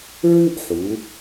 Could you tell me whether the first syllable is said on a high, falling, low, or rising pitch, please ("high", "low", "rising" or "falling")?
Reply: high